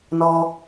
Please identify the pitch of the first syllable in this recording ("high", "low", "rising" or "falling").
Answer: low